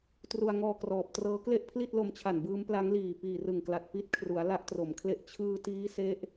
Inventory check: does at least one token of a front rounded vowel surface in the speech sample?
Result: no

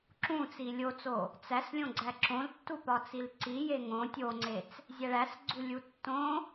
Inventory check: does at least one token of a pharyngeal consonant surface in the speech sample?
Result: no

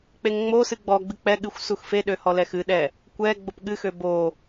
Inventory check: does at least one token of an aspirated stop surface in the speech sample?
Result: no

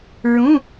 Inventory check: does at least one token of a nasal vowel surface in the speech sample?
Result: yes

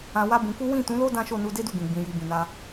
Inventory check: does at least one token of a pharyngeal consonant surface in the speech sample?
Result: no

